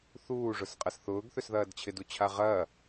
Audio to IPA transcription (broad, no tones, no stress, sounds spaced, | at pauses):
θ uː ʐ ʊ s qʼ ɐ s θ ʊː ɡ θ ø s ð ɐː d t͡ɕʰ ɪ d u t͡ɕʰ a ʁ ɐː